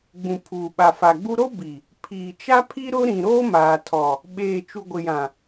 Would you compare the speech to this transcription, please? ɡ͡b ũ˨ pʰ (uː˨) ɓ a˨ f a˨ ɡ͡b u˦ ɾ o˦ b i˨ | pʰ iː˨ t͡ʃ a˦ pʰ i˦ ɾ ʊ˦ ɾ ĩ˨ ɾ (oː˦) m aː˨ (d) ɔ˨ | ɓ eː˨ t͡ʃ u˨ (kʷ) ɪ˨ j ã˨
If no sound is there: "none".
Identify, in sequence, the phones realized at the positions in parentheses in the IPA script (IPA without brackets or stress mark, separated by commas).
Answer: uː˨, oː˦, tʰ, ɡʷ